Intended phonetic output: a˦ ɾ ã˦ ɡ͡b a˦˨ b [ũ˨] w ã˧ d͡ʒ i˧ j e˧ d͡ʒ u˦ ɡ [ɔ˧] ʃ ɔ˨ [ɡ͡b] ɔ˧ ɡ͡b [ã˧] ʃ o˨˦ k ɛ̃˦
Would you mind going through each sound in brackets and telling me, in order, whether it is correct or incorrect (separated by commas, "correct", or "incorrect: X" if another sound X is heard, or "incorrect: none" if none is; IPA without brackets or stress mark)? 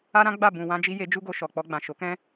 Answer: correct, incorrect: o˧, incorrect: k͡p, incorrect: ã˨